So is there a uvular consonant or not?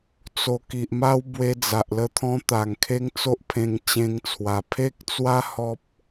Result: no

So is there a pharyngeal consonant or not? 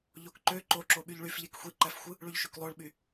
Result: no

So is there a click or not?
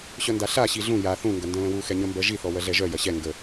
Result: no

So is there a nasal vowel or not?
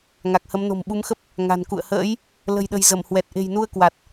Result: no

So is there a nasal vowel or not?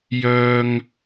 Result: no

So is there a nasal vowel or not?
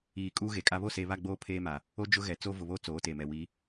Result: no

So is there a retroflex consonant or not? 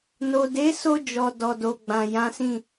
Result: no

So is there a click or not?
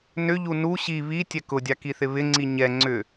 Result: yes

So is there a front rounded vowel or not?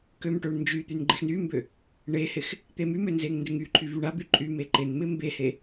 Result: yes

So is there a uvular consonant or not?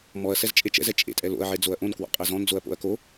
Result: yes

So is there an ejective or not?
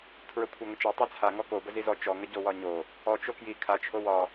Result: no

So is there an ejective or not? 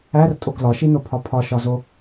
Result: yes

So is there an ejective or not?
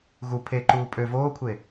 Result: yes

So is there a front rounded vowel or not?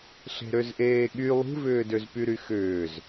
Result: yes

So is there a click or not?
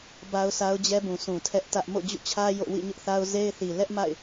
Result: no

